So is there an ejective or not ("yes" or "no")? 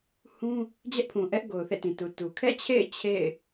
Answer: no